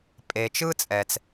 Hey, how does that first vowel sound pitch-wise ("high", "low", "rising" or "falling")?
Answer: low